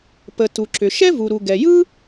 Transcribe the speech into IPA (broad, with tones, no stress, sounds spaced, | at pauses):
p ə˩ t u˩ ǁ ʏ˩ ʃ ɛ˥ v u˩ ɾ u˩ ɡ ɛ˩ j ɯ˥